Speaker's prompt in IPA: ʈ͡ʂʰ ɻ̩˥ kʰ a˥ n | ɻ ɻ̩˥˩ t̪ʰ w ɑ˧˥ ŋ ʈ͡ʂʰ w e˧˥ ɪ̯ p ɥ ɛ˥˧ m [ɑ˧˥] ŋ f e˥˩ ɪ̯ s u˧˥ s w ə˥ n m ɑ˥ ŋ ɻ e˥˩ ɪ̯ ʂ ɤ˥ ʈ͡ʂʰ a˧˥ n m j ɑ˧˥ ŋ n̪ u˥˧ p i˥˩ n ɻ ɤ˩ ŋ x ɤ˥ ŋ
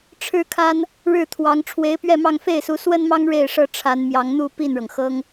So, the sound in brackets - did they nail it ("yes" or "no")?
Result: no